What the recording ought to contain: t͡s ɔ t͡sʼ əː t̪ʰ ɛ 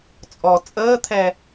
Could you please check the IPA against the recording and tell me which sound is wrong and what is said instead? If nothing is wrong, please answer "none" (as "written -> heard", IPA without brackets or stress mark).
t͡s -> t͡sʼ